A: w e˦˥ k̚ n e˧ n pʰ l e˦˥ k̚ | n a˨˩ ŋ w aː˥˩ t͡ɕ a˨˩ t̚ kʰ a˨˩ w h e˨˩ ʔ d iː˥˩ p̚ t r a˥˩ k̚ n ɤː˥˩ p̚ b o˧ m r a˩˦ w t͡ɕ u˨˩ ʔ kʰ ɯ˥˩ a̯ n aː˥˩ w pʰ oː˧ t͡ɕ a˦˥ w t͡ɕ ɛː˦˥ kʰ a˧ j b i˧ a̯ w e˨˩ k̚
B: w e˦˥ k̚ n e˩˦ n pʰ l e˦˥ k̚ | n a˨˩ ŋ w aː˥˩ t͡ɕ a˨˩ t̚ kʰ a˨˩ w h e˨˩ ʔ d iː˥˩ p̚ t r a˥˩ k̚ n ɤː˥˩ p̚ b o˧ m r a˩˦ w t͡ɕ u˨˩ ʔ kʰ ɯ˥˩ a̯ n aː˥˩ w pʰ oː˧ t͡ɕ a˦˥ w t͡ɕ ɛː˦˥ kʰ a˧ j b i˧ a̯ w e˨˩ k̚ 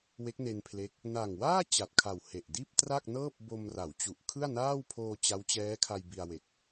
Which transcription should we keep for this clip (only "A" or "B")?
A